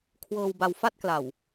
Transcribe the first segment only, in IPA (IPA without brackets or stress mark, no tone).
kʰ